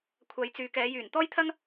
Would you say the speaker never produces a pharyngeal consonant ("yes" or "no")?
yes